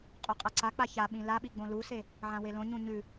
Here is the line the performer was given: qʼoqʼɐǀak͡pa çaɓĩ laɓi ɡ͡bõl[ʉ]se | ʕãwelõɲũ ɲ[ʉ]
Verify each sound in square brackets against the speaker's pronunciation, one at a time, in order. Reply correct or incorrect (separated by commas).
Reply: incorrect, correct